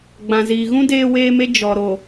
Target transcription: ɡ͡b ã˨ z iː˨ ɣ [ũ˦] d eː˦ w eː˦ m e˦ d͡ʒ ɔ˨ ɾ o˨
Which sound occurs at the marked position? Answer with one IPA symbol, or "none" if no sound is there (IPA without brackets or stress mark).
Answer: ũ˦